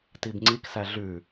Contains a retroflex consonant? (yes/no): no